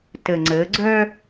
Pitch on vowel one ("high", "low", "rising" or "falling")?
low